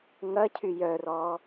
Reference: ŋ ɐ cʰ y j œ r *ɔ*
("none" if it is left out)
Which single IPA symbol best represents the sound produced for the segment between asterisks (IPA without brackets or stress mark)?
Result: ɔ